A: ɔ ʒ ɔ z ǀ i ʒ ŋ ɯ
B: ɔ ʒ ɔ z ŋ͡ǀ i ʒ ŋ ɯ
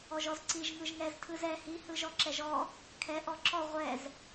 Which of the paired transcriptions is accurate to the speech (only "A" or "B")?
A